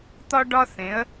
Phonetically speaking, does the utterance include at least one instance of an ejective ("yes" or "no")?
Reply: no